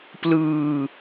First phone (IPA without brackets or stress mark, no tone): p